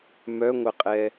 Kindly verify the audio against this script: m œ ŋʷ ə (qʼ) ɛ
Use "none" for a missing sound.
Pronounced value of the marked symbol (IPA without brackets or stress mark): qʼ